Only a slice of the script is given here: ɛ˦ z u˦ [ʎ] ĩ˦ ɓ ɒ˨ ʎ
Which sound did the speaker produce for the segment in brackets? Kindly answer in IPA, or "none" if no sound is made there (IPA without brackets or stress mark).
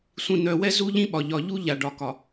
ʎ